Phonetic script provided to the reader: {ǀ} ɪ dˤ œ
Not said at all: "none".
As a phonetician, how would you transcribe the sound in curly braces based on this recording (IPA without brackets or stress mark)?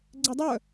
ɡ͡ǀ